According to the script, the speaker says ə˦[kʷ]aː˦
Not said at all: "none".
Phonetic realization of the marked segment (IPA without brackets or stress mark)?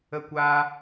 kʷ